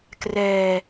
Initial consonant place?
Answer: velar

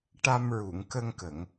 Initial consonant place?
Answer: retroflex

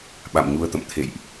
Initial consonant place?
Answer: labial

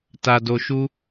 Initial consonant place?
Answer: alveolar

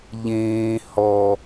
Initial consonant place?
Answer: palatal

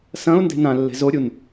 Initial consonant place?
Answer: alveolar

